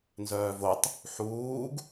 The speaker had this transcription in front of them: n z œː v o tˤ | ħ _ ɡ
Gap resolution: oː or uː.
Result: uː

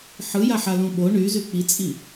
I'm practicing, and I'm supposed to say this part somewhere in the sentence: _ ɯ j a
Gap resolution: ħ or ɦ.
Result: ħ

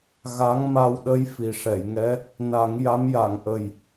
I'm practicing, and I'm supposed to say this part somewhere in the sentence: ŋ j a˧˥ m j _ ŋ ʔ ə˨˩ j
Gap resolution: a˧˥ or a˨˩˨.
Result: a˨˩˨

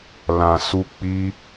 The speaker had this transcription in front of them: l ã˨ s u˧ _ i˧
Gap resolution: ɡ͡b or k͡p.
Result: k͡p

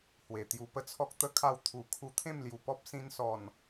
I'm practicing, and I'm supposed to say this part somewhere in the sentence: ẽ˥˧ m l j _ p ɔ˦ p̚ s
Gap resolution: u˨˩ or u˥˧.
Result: u˨˩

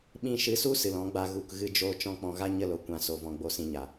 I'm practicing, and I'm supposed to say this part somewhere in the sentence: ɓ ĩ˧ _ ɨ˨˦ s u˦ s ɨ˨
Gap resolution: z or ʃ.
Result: ʃ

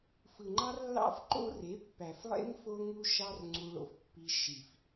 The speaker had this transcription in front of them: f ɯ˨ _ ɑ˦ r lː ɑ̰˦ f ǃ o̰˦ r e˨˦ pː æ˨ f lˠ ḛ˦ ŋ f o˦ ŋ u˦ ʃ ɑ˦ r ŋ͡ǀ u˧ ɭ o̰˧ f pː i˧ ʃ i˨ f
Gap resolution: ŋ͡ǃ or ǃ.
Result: ŋ͡ǃ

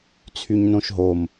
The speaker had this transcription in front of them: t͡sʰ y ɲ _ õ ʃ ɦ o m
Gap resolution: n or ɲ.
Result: n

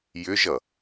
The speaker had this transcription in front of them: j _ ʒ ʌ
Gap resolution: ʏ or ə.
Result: ʏ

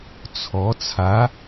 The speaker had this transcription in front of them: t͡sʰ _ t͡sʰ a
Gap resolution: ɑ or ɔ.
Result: ɔ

